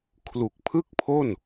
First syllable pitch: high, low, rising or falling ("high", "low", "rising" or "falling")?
low